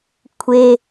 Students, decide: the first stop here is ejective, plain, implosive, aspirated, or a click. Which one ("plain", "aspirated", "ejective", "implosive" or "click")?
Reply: aspirated